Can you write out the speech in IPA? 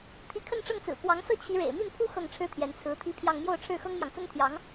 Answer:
t̪ʰ i˧˥ kʰ ə˥˧ n ʈ͡ʂ ɤ˥˩ ŋ t͡s ɹ̩˨˩ k w ɑ˧˥ ŋ s ɤ˥ t͡ɕʰ i˧˥ ɻ ḛ˨˩ ɪ̯ m i˥˩ n pʰ u˥ x ɤ˥˩ ŋ ʈ͡ʂʰ ɻ̩˥ t̪ʰ j ɛ˧˥ n t͡sʰ ɹ̩˧˥ t̪ʰ i˥ pʰ j ɑ˥˧ ŋ m j o˥˧ ʊ̯ ʈ͡ʂʰ ɻ̩˥˩ x ɤ˥ ŋ m j ɑ˨ ŋ t͡s ʊ˥ ŋ t̪ʰ j ɑ˧˥ ŋ

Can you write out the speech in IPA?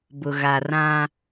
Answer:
b ʊ˨ ɣ a˨ r ã˦

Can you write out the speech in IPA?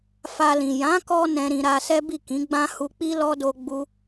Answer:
f a˧ l ĩ˨ j ã˨˦ k ɔ˧ n ɛ̃˧ ɾ ĩ˧ ɾ a˧ s ɛ˦ b i˦˨ k ĩ˨˦ ɡ͡b ã˦ h u˧ k͡p i˦ l ɔ˦ d o˧ ɡ͡b u˦

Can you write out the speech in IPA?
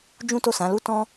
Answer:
d͡ʒ ũ˦ t o˦˨ s ã˨˦ l u˦ t ɔ̃˦

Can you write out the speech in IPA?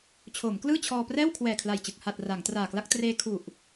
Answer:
t͡ɕʰ oː˩˦ m k l ɯː˥˩ t͡ɕʰ ɔː˧ p r ɛː˥˩ w kʰ w ɛː˨˩ kʰ l a˨˩ j t͡ɕ ɯ˨˩ k̚ h a˨˩ t̚ r a˩˦ ŋ t r aː˨˩ k l a˥˩ k̚ t r eː˧ kʰ u˨˩ ʔ

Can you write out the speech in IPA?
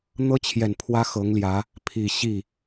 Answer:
n̪ ɤ˥ t͡ɕʰ j ɛ˨˩ n pʰ w ä˥ x ɤ˧˥ ŋ l j ä˧˥ | pʰ i˨˩ ɕ i˥˩

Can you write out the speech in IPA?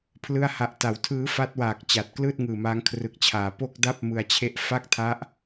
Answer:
pʰ l ɯ˥˩ a̯ h a˦˥ ʔ t a˨˩ w tʰ ɯː˦˥ f a˦˥ t̚ w aː˨˩ k̚ t͡ɕ a˨˩ t̚ k l ɯː˥˩ t̚ ŋ ɯː˨˩ m aː˦˥ ŋ kʰ r ɯ˨˩ k̚ t͡ɕʰ aː˩˦ p o˥˩ k̚ d a˥˩ p̚ m ɯ˧ a̯ t͡ɕʰ e˦˥ ʔ f a˥˩ k̚ tʰ a˦˥ ʔ

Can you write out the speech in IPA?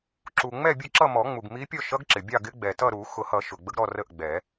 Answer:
ǁ u˩ ŋ͡m ɛ˥˨ bʲ ʊ˥˨ ǁ ʌ˥˨ m ɔ˨˩˦ ŋ͡m u˩ ɡ m i˧˥ pʲ ɔ˥˨ ʃ ʌ˧˥ ɡ ǁ ɪ˩ bʲ ɑ˥˨ ɡ ɪ˧˥ ɡ͡b ɛ˩ t ʌ˥˨ ɾ u˨˩˦ x ʊ˨˩˦ h ʌ˨˩˦ ʃ ʊ˩ ɡ͡b ə˧˥ ɡ ɾ ɔ˥˨ r ə˥˨ ʔ ɡ͡b ɛ˨˩˦

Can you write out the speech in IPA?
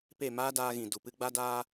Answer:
p e˦˨ m aː˦ d aː˧ ɣ ĩ˨ d u˨ p ɨ˧ ɡ͡b a˦ d aː˦

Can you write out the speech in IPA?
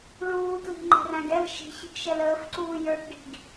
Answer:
ɭ uː t l i̤ ŋ͡ǃ ɛ̤ r æ̃ ɡ ɛ l ʃ i̤ ç i̤ ɡ ʃ ɛ l əː f ǀ uː j ə˞ ʈ ɖ i̤ ɡ

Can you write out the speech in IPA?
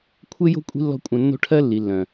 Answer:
kʷʰ e˦ j o̤˦ kʷʼ i̤˦ lː ɔ̤˦ kʷʼ œ̃˧ nː o̤˦ ʈʰ ɜ˦ lː i˨ lː œ̃˨

